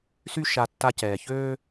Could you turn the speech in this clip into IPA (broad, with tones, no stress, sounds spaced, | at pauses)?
s y˥ ʃ a˧ tː a˧ c ɛː˩ ç øː˥